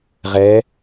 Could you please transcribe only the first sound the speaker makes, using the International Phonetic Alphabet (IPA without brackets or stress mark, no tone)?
ʁ